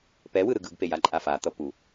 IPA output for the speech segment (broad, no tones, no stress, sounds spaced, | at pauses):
p ɛ w ɯ ɾ ɯ ɡ ɯ ɡ p e j a ǃʼ a f a t̪ ʌ p u